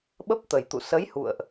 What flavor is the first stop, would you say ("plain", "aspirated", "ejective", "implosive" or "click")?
implosive